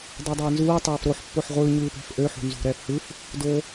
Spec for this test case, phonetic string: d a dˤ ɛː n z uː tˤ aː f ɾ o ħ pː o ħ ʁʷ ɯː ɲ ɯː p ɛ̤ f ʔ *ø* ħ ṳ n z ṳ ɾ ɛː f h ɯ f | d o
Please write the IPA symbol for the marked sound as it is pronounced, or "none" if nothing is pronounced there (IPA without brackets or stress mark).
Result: ø